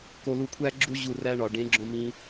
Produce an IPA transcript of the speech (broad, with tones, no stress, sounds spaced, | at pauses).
k o˧ l u˧ kʷʰ æ˦ ɡ͡ǁ u˦ ʑ u˦˨ r æ˦ ɳ ɒ˨ ɖ ẽ˨˦ ɡ͡ǁ õ˧ m ĩ˧